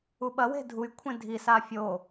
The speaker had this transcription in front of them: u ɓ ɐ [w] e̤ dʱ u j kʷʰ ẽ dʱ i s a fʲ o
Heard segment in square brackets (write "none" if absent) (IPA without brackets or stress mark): w